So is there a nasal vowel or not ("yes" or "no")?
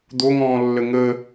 yes